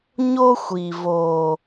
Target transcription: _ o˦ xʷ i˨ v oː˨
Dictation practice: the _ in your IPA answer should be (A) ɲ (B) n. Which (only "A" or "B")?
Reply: A